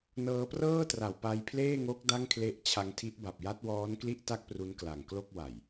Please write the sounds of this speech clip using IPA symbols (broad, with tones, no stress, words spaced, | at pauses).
nɤː˧prɤː˥˩tra˨˩w pa˧jpʰleː˥˩ŋo˦˥k̚ da˥˩ŋkʰle˦˥ʔt͡ɕʰa˧ŋtʰi˦˥ʔ ba˨˩p̚ja˦˥t̚wɔː˦˥nkli˥˩ʔ ta˥˩k̚pru˦˥nkla˨˩ŋklo˥˩k̚ wa˨˩j